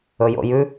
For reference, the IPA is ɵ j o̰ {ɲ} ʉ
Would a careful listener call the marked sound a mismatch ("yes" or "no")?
yes